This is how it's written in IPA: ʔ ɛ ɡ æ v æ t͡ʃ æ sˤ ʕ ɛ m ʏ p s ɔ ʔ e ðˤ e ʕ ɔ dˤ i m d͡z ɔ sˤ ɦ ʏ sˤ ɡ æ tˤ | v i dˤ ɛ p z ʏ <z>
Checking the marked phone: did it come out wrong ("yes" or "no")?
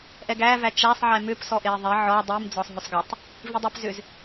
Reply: no